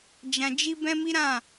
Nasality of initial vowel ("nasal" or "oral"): nasal